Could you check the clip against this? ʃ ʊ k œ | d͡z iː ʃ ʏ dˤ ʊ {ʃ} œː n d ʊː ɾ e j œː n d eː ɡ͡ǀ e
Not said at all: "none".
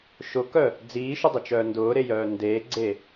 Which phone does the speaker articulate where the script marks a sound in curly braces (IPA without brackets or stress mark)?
t͡ʃ